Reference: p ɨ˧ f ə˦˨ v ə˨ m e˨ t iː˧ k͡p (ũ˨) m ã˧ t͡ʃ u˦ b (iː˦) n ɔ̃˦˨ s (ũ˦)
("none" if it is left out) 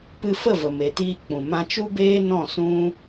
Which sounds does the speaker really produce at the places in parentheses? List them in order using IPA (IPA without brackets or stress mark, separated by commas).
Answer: ũ˨, eː˦, ũ˦